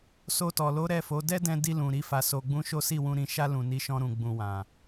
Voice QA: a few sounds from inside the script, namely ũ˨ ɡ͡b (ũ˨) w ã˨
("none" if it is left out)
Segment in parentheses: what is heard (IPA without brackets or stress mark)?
ũ˨